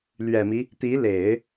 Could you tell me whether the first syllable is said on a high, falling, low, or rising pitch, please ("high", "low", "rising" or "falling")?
low